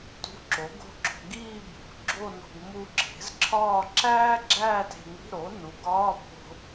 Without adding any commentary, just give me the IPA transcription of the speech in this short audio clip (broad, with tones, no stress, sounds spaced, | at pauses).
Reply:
t ṳ˧˥˧ ǁ o˩˥ ɡ o̤˥˧ ɡ͡ǁ o̤˧ ɡ iː˥˧ bʱ ṳ˩˥ ɡ͡ǁ o˥˧ n o̤˧ ɡ m u˧ ǁʰ e̤˩˥ z ǁʰ ɒː˥˧ ǁ æː˥ ɡ͡ǁ æː˥˧ t e̤˧ ŋ i̤˧˥˧ ɾ o˩˥ n u˩˥ ɡ ɒː˧˥˧ bʱ o̤˧